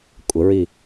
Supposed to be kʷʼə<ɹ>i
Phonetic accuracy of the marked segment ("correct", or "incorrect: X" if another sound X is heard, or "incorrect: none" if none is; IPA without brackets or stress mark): correct